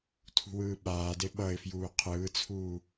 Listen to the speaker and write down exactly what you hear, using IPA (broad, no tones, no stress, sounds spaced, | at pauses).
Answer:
tʰ ṳ w ɯː ɓ aː d e ɓ ʌ ɪ̯ f j uː qʰ ɯː t͡sʰ uː